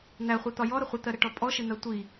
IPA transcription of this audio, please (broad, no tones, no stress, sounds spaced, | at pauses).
n̪ æ χʷ i t̪ ɒ j ɔ ɾ ə χʷ ɪ t̪ ɜ ɾ ɪ ʈ ɔ pʼ ɔ ʃ ɪ n̪ ɜ tʷ i